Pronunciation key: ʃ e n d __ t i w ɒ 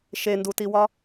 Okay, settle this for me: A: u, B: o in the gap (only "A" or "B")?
A